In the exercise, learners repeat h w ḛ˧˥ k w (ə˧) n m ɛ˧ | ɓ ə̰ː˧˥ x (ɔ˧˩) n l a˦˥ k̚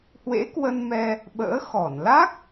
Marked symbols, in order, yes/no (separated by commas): yes, yes